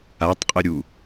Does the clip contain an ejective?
yes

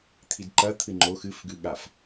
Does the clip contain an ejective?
no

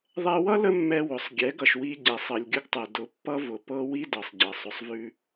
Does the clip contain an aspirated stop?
no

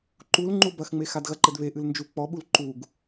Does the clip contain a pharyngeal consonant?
no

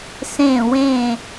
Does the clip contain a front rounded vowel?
no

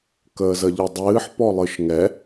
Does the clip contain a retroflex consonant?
no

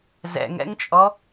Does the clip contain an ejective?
yes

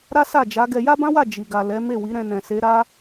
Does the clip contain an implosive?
no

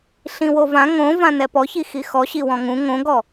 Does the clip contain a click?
no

